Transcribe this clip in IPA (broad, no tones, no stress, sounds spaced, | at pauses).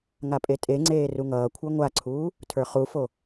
ŋ a pʼ e tʼ e ŋ͡ǀ eː r u ŋ ʌː kʷʰ ə˞ ŋʷ a ǀʰ uː | tʰ ə˞ χ u f o